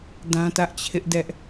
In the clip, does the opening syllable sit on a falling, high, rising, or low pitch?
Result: high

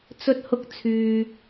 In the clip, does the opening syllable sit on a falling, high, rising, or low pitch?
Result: high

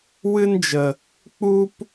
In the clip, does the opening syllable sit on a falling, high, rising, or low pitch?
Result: high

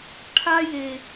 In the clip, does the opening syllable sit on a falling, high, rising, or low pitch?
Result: high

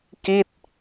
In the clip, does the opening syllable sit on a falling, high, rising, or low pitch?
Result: falling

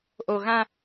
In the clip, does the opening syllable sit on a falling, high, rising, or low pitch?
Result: low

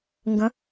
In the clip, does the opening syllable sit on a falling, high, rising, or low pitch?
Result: rising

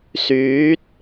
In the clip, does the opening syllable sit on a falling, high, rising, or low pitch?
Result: rising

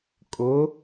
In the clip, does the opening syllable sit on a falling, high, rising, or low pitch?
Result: rising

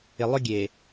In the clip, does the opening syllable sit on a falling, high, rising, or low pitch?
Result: low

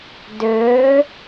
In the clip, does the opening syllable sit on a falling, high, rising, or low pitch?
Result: rising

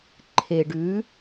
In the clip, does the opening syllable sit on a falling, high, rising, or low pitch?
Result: low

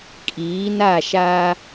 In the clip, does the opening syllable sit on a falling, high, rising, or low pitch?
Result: rising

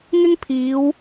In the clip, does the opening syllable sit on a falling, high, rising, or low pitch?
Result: high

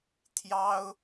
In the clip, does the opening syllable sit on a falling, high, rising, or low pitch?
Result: high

